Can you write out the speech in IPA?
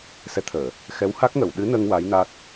s ɛ˧˥ t̪ʰ əː˨˩˨ | x ɛ˧˥ w h a˦˥ k̚ ŋ ə˨˩˨ w ɗ ɨ˧˥ n ə˧ ŋ w a˧˥ j n a˦˥ t̚

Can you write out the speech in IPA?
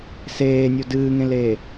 s eː nʲ o d ɨː ŋ ẽ l eː

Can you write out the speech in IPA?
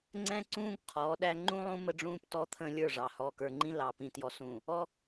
ŋ͡ǀ ɛ̃˦ ǀ ũː˦ ɡ qʰ ɔː˨˦ ɗ æ˦ ŋ͡ǃ ũ˦ lˠ ũ˦ m ə˦ ɖ͡ʐ ũː˦ p t ɔ˦ t̪ʰ ə̃ː˦ lʲ ə˞˦˨ ʐ ɑ˨ h ɔː˨ k ə˞˨ ŋ͡ǃ ĩ˦ l ɑ˨ p ĩ˨ t j ɔ˨ s ũː˨ | ɔ˦

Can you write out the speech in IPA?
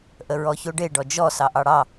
ʔ ə ɹ ɔ ç o ɖ e ɖ ɔ d͡ʒ ɔ s ɑ ʔ ɑ ɽ ɑ

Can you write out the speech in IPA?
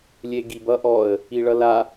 lʲ e ɡ i b ʌ ʔ ɔ ə̯ | i ɭ ʌ l a

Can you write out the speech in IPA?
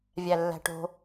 vʲ æ lː æ̤ ʈ o̤

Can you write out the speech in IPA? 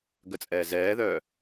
ɡ ə t͡sʼ ɛː z ɛː ð œː

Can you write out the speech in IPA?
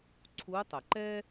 ǀʰ u˧˥ tˤ ə˩ ǃ ɛ˥

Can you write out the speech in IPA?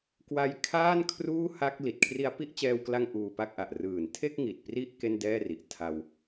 k w a˦˥ j kʰ aː˥˩ n kʰ r uː˥˩ h a˦˥ k̚ l i˨˩ t̚ kʰ r i˧ a̯ p i˥˩ ʔ t͡ɕ ɛː˧ w k l a˧ ŋ ʔ uː˧ p a˥˩ k̚ ʔ a˨˩ ʔ r ɯː˨˩ n tʰ e˥˩ k̚ ŋ i˨˩ t̚ p r i˦˥ ʔ k e˥˩ n d ɛː˥˩ r i˨˩ ʔ tʰ a˧ w

